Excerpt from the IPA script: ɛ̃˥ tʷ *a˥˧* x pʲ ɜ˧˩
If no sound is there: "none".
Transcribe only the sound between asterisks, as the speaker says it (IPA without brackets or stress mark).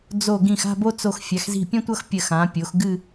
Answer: ʌ˥˧